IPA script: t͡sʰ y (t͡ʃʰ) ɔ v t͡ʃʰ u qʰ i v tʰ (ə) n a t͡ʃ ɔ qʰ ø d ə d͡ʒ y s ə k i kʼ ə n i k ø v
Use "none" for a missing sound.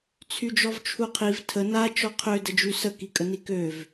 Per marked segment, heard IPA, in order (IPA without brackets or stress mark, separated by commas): d͡ʒ, ə